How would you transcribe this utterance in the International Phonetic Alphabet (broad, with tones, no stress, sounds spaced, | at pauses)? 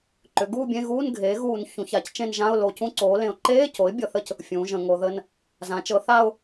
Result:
ǃ ʏ˩˥ ɡ uː˥˧ bʲ ẽ˧˥˧ ɣ uː˧˥˧ n ɡʱ eː˩˥ ɣ uː˧˩˧ n ç ũ˩˥ ç a˩˥ c t͡ʃ ẽ˥˧ n ʒ ã˧˥˧ ʊ̯ l o˧˩˧ c ũ˧˥˧ ǀ oː˩˥ l ẽ˩˥ ʊ̯ ǃ eː˧˥˧ c o˩˥ ɪ̯ bʲ ɤ˧˩˧ θ ə˥˧ c | fʲ ũː˩˥ ʒ ə̃˧˩˧ ŋ o˩˥ ð ə˧˥˧ n | z ã˩˥ t͡ʃ ɤ˩˥ θ a˥˧ ʊ̯